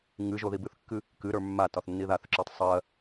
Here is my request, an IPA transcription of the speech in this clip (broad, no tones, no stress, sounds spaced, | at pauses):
ŋ ɨ ʒ o ð i b ɨ θ kː ɨ | k ɨ ɾ ə˞ mː a t ɒ θ nː i ð a θ ǁ ə˞ tˤ sˤ ɜ